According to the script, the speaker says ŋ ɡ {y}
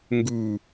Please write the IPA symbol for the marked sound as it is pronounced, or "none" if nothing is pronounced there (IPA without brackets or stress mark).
u